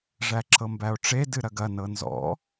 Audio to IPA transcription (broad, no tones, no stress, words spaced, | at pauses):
ʐæǁɤmbæo̯ʈ͡ʂe dɨɾɐɡɐ nɤnzɔ̰